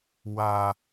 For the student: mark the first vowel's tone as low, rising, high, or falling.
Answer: high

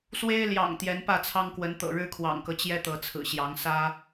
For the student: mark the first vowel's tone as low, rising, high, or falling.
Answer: high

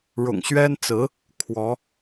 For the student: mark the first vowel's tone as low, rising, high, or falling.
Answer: low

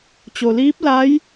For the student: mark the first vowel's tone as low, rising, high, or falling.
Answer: low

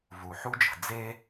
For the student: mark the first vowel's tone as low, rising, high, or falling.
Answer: low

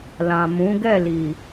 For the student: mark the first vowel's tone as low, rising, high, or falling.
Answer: low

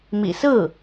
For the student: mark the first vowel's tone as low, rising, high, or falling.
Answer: low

